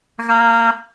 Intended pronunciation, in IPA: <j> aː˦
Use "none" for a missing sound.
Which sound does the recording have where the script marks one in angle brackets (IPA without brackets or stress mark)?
ɣ